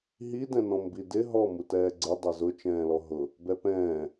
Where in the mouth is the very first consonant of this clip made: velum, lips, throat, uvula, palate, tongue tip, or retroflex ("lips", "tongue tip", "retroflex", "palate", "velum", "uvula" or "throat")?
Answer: throat